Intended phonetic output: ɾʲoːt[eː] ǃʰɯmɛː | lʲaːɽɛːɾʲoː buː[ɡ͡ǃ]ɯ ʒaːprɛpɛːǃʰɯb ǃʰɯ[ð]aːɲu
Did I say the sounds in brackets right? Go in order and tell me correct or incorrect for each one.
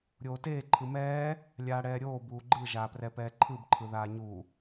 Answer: correct, correct, correct

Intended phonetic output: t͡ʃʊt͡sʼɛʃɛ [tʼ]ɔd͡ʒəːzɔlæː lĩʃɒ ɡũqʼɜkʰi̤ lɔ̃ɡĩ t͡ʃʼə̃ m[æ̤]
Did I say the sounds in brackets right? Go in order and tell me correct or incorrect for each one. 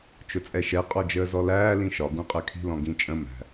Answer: incorrect, correct

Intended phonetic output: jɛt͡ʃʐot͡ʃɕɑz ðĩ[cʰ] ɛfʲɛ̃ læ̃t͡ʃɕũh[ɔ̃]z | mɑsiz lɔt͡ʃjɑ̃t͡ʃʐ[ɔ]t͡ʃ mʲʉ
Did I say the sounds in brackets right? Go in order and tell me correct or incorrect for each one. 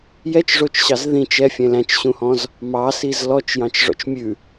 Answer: incorrect, correct, incorrect

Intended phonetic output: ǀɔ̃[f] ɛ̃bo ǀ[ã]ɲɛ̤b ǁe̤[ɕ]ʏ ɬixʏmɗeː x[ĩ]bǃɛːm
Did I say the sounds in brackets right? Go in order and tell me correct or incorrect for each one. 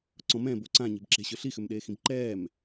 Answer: incorrect, correct, correct, correct

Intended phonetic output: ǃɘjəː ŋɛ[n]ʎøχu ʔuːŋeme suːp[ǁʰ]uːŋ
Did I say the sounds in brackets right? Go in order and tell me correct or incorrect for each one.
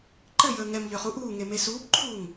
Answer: incorrect, incorrect

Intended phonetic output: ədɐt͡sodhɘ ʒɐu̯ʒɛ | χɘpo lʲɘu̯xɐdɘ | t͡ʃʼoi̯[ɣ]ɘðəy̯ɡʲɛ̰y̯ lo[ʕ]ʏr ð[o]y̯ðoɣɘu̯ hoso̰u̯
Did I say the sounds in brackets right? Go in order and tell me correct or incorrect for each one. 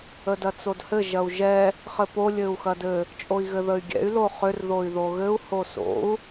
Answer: correct, incorrect, correct

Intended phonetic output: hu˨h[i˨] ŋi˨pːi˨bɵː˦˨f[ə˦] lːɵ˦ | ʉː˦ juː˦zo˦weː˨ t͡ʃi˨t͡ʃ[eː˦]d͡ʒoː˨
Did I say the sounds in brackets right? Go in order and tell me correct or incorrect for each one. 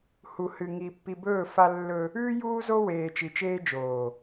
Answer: incorrect, incorrect, correct

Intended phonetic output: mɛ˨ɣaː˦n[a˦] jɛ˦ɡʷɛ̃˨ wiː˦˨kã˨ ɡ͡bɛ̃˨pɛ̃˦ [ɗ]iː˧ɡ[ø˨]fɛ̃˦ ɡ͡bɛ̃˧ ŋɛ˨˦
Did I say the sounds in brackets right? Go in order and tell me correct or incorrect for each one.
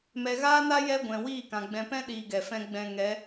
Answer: correct, correct, incorrect

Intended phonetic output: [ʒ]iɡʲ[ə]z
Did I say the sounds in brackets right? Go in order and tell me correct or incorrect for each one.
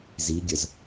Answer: incorrect, correct

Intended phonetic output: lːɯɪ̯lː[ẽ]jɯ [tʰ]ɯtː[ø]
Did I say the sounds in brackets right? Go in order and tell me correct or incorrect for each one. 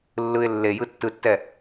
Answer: incorrect, incorrect, incorrect

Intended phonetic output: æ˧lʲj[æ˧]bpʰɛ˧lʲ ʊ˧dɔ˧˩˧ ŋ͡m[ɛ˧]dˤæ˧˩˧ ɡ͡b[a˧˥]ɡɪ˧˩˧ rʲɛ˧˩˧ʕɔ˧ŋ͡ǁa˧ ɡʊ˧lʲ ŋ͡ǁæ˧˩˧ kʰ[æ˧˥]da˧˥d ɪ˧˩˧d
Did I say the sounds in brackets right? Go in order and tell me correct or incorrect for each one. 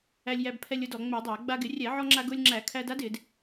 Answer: correct, incorrect, incorrect, incorrect

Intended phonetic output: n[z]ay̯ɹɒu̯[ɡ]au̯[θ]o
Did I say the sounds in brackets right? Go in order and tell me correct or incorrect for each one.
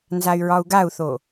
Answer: correct, correct, correct

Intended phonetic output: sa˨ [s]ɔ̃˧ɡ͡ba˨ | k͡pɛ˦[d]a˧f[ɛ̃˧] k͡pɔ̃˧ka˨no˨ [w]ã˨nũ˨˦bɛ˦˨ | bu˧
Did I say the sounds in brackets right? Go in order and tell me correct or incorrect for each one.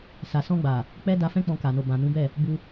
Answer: correct, correct, incorrect, incorrect

